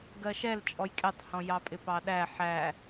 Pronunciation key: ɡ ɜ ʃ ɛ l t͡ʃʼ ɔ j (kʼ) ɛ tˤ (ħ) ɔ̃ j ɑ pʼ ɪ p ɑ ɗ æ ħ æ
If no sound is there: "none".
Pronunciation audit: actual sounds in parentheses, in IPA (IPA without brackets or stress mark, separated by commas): kʼ, h